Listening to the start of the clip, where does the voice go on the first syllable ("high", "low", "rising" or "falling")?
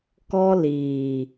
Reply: high